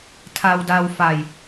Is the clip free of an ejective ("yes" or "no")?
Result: yes